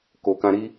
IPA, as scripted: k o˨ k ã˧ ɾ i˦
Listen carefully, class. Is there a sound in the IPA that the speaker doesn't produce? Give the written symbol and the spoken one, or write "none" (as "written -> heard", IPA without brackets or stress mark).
none